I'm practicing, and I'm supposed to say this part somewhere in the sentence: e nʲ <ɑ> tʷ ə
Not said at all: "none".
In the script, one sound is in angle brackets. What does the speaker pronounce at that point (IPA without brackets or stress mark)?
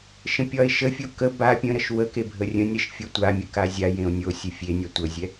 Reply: ɑ